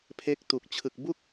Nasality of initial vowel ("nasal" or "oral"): oral